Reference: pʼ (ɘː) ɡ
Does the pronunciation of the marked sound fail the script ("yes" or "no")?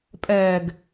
yes